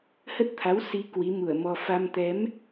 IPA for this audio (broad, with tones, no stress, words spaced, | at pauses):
hə˦˥t̚t̪ʰa˨˦w si˨˦ kwi˨˦mu˧˩ə̯mɔ˧ fa˧m t̪ɛ˨˦m